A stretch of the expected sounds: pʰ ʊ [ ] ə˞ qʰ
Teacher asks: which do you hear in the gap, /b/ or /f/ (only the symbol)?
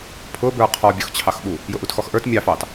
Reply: b